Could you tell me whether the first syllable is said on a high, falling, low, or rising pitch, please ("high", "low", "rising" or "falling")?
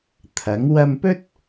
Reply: rising